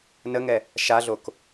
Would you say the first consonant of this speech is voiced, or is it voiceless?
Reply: voiced